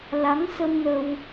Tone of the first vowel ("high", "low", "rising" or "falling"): rising